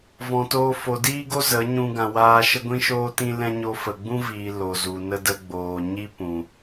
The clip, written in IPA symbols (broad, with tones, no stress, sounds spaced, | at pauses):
v ɔ̃˨ t oː˧ f o˨ d iː˦ ɡ o˦ z ə˨˦ ɲ ũ˧ ɡ ã˨ w aː˧ ʃ ə˦ ɡʷ ĩ˦ ʃ oː˦ t ĩ˦ l ɛ̃˦ ɲ o˧ f ə˨ ɡ͡b ũ˦ v iː˨ l o˨ z u˨ n ə˦ d ə˧ ɡ͡b oː˨ ɲ i˦ p ũ˨